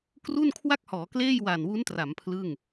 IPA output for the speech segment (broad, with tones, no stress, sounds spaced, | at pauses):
k r u˥˩ n kʰ w a˥˩ k̚ h ɔː˩˦ k l eː˥˩ j w a˨˩ n w u˦˥ n t r a˩˦ m pʰ l ɯ˥˩ ŋ